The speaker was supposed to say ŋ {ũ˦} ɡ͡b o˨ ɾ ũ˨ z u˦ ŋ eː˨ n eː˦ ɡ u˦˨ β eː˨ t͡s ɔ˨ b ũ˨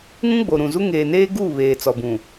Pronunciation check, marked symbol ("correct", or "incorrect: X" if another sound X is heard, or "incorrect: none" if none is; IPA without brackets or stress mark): correct